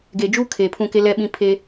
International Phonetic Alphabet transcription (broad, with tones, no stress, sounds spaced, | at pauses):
ɡ e˨ d͡ʒ uː˦ kʰ eː˨ pʰ ũ˦˨ k e˦ l ɛ˦ ɓ ĩ˦ pʰ e˦